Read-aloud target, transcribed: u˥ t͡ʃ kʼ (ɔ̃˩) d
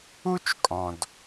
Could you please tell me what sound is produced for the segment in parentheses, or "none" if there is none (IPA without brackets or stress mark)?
ɔ̃˩